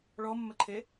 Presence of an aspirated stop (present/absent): present